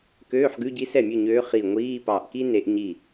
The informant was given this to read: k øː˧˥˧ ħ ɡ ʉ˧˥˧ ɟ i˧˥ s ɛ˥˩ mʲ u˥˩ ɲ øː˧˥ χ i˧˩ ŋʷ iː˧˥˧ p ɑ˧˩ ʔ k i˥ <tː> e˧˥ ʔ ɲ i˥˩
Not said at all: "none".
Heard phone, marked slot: n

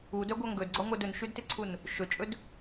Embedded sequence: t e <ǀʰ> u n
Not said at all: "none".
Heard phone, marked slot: ǀʰ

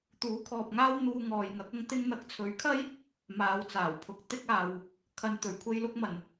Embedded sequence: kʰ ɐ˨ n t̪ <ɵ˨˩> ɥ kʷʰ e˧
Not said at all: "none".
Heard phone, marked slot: ɵ˨˩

